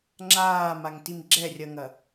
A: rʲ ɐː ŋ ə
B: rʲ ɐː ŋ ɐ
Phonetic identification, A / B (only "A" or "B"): B